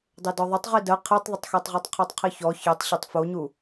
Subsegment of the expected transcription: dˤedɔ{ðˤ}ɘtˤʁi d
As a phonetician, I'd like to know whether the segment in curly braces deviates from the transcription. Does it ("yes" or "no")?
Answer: no